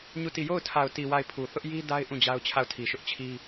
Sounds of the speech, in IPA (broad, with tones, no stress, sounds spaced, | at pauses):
ɲ u˦˨ t i˦˨ j o˦˨ ʊ̯ tʰ a˨ ʊ̯ t i˨ w a˦˨ ɪ̯ pʰ u˨ θ ʊ˦ ʔ j i˦ d a˦ ɪ̯ ʔ ũ˦˨ d͡ʑ a˦ ʊ̯ t͡ɕʰ a˦˨ ʊ̯ tʰ i˨ ʃ ʊ˦ ʔ t͡ɕʰ i˦